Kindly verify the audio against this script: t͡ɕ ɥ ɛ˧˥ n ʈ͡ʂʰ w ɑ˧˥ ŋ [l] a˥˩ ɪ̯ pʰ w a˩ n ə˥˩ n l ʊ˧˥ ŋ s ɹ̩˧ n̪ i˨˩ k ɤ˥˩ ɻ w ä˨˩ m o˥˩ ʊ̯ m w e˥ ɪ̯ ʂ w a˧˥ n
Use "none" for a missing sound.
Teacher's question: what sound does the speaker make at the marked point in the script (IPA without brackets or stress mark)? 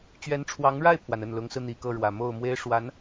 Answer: ɻ